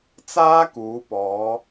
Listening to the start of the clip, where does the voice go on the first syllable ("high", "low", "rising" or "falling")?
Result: high